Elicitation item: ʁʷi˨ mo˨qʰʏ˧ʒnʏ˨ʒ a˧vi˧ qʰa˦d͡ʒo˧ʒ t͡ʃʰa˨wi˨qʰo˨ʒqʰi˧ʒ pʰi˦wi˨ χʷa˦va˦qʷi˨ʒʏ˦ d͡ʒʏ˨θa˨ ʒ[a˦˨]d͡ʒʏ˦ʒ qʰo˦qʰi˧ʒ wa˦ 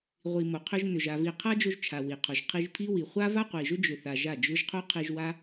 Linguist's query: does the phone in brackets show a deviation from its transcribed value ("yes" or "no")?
no